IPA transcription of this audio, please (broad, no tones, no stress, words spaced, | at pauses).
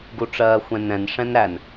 ɡuʈ͡ʂɜːxʷɛ̃nɛ̃n ʂɛ̃nɾæn